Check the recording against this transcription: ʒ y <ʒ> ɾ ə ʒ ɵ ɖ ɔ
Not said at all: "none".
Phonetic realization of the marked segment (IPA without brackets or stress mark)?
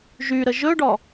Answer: none